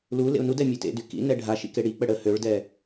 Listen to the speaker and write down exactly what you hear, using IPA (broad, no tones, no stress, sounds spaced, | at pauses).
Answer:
l u l ḛ ʊ̯ n u d ɛ mʲ e t ḛ d y k ḭ n ɛ ɖʱ a ʃ ḭ k e ɽ i k͡p ə ɽ ə h ø ɭ d ɛ